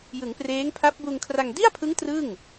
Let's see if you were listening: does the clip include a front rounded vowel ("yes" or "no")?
no